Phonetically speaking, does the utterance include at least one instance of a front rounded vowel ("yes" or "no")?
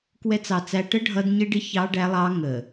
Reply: no